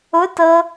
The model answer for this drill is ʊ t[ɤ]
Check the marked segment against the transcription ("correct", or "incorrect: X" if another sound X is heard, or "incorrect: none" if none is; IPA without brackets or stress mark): correct